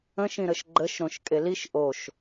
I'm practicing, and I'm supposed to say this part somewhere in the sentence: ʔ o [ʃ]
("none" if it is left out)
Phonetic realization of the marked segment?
ʃ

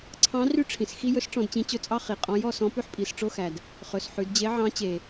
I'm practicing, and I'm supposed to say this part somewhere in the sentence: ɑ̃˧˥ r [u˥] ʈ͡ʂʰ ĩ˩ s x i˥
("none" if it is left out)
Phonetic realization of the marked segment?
y˥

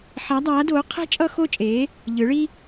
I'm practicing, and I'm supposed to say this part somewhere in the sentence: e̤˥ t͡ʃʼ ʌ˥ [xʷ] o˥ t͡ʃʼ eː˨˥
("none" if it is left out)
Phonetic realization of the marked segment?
x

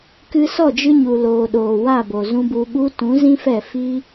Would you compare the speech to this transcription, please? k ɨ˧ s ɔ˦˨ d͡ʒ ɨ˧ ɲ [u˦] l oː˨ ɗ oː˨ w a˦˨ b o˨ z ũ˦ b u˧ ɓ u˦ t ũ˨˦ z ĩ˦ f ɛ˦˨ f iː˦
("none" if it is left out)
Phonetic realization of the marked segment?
u˨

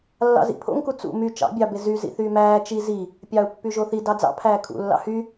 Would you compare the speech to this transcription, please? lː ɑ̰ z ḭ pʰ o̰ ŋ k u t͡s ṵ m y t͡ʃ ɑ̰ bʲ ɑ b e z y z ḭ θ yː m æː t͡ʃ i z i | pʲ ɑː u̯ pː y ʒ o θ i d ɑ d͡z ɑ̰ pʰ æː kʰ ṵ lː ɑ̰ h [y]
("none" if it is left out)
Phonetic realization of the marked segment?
y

